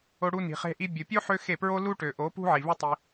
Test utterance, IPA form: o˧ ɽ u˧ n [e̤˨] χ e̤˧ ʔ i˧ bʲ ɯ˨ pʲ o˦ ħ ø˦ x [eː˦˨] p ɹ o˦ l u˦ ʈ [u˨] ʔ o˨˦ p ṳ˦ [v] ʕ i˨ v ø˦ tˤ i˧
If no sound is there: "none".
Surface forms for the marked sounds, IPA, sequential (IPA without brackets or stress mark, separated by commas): i̤˨, e˦˨, ø˨, none